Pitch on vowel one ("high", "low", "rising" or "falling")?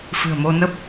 low